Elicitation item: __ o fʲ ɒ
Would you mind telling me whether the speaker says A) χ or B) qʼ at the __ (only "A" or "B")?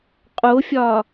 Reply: B